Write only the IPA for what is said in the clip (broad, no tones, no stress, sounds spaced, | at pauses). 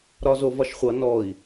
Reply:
ɾ ɒ z o v ɒ ʃ χʷ ʌ n ɔ i̯